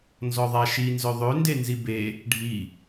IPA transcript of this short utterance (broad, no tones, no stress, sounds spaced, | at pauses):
n z ɔ ðˤ a ʃ i n z œ ðˤ ø n d e n z i b e | ɖʱ i